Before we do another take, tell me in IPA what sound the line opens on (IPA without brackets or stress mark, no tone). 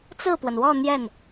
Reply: t͡s